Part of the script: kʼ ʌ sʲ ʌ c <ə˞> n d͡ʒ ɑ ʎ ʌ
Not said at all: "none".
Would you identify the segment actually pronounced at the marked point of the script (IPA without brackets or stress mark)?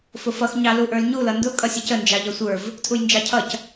ə